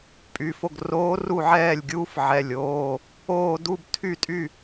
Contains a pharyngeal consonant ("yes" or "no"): yes